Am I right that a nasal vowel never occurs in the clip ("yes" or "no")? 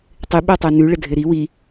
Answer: yes